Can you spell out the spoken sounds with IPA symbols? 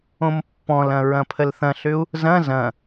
õ m pː ɔ̃ l ɐ̃ ɹ ɐ̃ pʰ ə l θ ɐ̃ ɬ ʏ u̯ | z ɐ̃ z ɐ̃

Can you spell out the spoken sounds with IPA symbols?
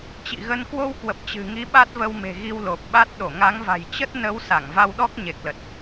t͡ɕ ḭ˧˨ ɣ ə˧ n k w o˧ w k w ə˨˩ p̚ t͡ɕ ɨ̤˨˩ ŋ i˨˦ ɓ a˦˥ t̚ v ə˧ w m e̤˨˩ ɣ i˧ w l o˨˩ p̚ ɓ a˦˥ t̚ ɗ o˧˩ ŋ a˨˦ ŋ v a̤˨˩ j t͡ɕ ə˦˥ t̚ n ə˨˦ w s a˧˩ ŋ v a˧ w ɗ ɔ˦˥ k̚ ɲ e˨˩ k̚ l ə˨˩ t̚

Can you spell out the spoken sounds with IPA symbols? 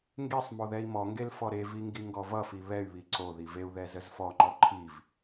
ŋ ɡ e sˤ m o ð ɛ i̯ m ɔ ŋ ɡ e l f ɔ ɾ e v i ŋ ɡ i ŋ ɡ ɔ v ʌ f i β ɛ y̯ β i ǀ o ð i v e u̯ ð ɛ z ə z f ɔ ŋ͡ǃ ɔ ǃʰ i v

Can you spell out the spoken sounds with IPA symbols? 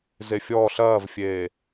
z e fʲ ɔː ɬ ɐː v fʲ eː

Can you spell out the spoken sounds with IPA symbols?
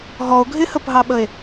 ɦ ɔ o̯ ɡʱ ɪ h ə p ɦ ɑ ɓ ə e̯

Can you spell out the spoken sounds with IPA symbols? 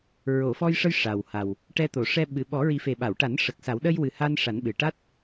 ɹ o˨˩˨ f ɔ˧ j ʂ ə˧ j ʂ a˨˩ w h a˨˩ w | ʈ ɛ˧ t̪ o˨˩˨ ʂ ɛ˧ ɓ ɨ˨˩˨ ɓ ɔ˨˩˦ ɹ i˨˩˦ f e˨˩ ɓ a˨˩˨ w ʈ a˨˩˦ n ʂ ə˨˩ k̚ s a˨˩˦ w ɗ ə˧ j w ɨ˨˩ h a˧ n ʂ a˨˩˦ n ɓ ɨ˨˩ ʈ a˦˥ t̚

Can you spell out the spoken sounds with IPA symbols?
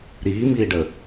ɾ iː m iː ɖ ə

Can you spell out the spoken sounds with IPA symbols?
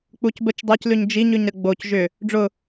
k͡p u c b ə t͡ʃ dˤ ɤ c l ʉ ɲ d͡ʒ i ɲ ʉ ɲ ɾ ə ɡ͡b o c ʒ ʏ | ɖ͡ʐ ʊ

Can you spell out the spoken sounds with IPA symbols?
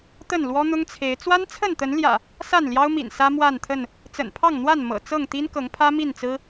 t̪ ə˥˨ n l w ɔ˦ n̪ ʊ˦ ŋ t͡sʰ e˨˦ ɪ̯ t͡s w a˦ n t͡sʰ ə˥˨ n t̪ ə˨˦ n l j ä̰˨˩ | s a˥˨ n l j ɑ˦ ʊ̯ m ḭ˨˩ n s ä˦ m w a˥˨ n t̪ʰ ə˥˨ n | t͡s ə̰˨˩ n pʰ ɑ˥˨ ŋ n̪ w a˥˨ n m ɤ̰˨˩ t͡s ɤ˥˨ ŋ t̪ i˦ n k ɤ˨˦ ŋ pʰ ä˦ m i˥˨ n t͡s ɹ̩˦

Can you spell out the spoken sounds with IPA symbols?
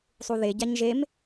sˤ u ð e ɟ a ɲ ʒ e m

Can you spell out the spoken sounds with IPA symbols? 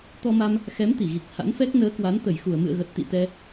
t̪ ɔ˧ m a˧ m | x ɛ˨˦ m t̪ i˧˩ ɣ i˨˩ k̚ h a̰˧˥ n f ɛ˦˥ k̚ n əː˨˦ k w a˨˦ n t̪ ə˧˩ j x u˧˩ ə̯ m ɨ̰˧˨ ə̯ ɣ ə˨˩ t̚ t̪ ḭ˧˨ t̪ ɛ˧

